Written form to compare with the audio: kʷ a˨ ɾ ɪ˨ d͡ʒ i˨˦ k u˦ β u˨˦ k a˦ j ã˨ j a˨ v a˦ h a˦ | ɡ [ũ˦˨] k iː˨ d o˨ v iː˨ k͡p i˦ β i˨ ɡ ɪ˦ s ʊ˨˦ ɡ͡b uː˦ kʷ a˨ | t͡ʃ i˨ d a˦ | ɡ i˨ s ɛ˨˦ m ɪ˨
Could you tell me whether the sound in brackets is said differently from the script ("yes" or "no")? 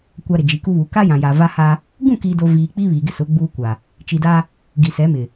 no